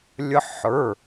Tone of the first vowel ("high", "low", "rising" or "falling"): high